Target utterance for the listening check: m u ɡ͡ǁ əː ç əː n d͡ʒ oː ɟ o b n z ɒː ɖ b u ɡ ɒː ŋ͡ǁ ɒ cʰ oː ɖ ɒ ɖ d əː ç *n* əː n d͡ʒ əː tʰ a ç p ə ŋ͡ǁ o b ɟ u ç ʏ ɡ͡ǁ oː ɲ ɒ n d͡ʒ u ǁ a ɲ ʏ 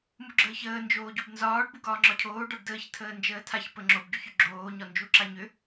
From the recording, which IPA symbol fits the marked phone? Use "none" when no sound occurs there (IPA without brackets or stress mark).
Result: tʰ